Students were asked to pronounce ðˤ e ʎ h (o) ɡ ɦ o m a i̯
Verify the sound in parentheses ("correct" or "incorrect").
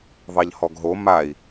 incorrect